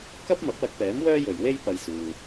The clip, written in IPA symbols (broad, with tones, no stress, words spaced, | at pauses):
kɐ˥p̚ mɐ˨˥p̚wɐ˧k̚pɛː˨˥m wœː˥jɵ˨ɥwe˥j pɐ˧jsuː˨